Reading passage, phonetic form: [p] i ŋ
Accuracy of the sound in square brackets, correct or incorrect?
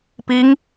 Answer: correct